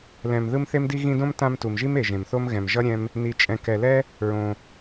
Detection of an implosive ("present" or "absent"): absent